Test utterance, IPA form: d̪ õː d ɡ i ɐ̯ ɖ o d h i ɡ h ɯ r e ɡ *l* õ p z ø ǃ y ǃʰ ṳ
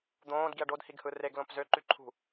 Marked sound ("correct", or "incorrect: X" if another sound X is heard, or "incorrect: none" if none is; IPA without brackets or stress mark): correct